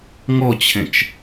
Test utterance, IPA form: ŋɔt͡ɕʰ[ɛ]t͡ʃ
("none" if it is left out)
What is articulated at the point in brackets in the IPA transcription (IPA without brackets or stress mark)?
ɛ̃